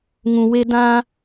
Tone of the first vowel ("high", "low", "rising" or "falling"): low